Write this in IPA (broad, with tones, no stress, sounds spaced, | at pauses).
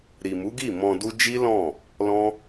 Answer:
ɾ i˨ m u˨˦ ɡ i˦˨ m ɔ̃˧ d u˦ d͡ʒ i˦ l ɔ̃˦˨ | l ɔ̃˦